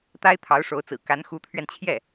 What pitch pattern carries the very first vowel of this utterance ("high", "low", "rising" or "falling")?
high